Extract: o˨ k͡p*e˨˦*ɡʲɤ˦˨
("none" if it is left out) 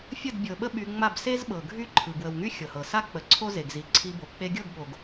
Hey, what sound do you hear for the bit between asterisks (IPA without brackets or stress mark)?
e˧